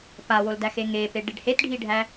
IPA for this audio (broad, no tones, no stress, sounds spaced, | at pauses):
p a w o l d æ x e ŋ e p e ɖ e ɖ h e t ɖʱ i ɖʱ æ